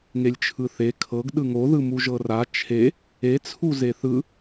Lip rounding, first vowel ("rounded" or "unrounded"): unrounded